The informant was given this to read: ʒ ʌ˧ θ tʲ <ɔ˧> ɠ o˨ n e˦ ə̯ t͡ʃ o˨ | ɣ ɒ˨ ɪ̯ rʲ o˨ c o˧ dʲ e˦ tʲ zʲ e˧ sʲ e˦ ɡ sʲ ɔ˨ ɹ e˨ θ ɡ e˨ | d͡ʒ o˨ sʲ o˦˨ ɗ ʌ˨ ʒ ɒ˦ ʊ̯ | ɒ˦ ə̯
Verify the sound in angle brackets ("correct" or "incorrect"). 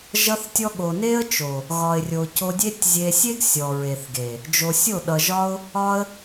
correct